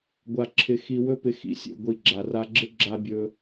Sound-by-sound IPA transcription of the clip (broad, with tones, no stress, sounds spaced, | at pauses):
ɡʷ a˧ ǁʰ ɪ˧ x i˧ w ɵ˦ p ɪ˧ x ḭ˨ sʲ ḛ˨ ɡʷ i˨ ɡ͡ǁ a˨ r a˧ ɡ͡ǁ ɪ˦ ɡ͡ǁ a˦ bʲ ɵ˦